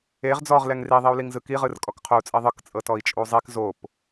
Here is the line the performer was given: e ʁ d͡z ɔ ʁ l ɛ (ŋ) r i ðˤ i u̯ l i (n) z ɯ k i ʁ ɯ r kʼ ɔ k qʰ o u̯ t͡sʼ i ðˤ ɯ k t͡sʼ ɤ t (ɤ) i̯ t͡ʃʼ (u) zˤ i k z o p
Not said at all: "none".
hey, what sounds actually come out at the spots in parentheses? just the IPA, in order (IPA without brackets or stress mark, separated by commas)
ŋ, ŋ, ɔ, u